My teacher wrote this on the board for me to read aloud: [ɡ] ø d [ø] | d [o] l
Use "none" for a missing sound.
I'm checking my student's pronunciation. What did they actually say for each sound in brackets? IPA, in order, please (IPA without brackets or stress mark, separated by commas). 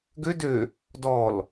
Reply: ɡ, ø, ɔ